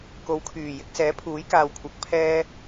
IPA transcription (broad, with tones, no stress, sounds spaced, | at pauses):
k o˨˧ w kʰ yː˨˩ j ɪ˧ k̚ s ɛː˨˥ pʰ uː˨˥ j k aː˨ w kʷʰ ɐ˨˥ k̚ pʰ ɛː˥